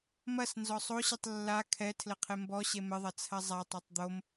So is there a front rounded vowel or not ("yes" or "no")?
no